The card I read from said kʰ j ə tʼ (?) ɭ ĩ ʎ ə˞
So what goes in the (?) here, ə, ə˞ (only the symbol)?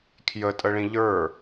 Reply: ə